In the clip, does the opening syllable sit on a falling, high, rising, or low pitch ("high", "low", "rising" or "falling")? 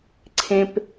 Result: low